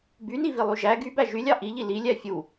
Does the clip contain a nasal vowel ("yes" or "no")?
no